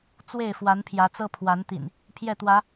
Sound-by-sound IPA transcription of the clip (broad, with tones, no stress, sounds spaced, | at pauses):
t͡s w e˥˨ ɪ̯ f w a˨˦ n pʰ j ä˨˦ t͡s ɤ˦ pʰ w a˨˦ n t̪ ḭ˨˩ n | pʰ j ɛ˥˨ t̪ w ä˨˦